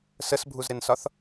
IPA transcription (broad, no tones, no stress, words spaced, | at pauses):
səsbʱuzɾɪnsɒθ